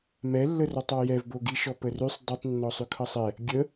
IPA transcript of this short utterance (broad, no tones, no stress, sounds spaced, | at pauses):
m ɛ lː ə r ɔ tˤ ɔ j ɛ v b o ɡ i ʃ ɔ p ə r ʉ sˤ dˤ i tˤ nː ɔ sˤ ʉ kʰ ʌ sˤ ɛ | ɡʲ ə